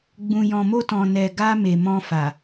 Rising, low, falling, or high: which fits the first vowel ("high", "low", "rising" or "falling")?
low